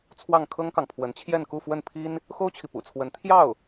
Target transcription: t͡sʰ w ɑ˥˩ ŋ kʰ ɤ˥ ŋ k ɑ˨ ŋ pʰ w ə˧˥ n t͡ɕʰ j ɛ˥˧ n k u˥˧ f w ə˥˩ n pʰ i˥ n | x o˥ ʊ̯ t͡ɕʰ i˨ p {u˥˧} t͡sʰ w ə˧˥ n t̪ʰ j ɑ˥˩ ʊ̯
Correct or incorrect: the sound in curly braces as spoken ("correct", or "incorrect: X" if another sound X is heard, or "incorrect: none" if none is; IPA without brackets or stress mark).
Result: incorrect: ṵ˨˩